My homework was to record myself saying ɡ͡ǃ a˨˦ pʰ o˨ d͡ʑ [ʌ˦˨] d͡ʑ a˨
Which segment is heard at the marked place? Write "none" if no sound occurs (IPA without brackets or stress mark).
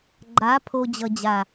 ʌ˨